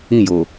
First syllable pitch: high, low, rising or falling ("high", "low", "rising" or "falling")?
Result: falling